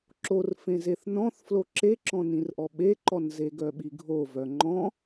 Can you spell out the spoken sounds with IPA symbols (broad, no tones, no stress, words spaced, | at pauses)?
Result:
ǁorfẽzeθ nɔ̃θflo ǁeǁɔ̃nĩrʔɔ ɓeǃɔnze ɡœɓiɡʱovœ ŋ͡ǃɔ̃